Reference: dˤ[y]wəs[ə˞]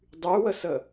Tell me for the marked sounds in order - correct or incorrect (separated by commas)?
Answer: correct, incorrect